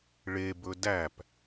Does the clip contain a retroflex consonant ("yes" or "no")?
yes